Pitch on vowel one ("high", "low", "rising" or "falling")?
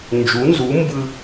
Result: rising